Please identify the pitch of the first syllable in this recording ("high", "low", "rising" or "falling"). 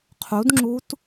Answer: rising